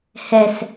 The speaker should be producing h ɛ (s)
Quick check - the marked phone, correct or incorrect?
correct